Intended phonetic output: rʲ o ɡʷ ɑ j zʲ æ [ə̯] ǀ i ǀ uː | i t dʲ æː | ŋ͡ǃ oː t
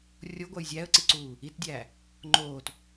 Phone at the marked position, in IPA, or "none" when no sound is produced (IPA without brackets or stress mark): ə̯